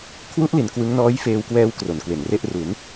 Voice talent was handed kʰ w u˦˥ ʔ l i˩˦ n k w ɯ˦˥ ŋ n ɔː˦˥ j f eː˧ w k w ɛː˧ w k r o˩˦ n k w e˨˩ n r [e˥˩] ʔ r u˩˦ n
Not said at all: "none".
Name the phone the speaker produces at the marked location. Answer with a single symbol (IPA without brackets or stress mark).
e˥˩